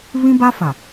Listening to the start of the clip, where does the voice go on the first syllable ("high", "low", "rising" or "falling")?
high